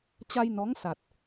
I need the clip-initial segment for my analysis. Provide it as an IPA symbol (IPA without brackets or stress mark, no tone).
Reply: t͡ɕ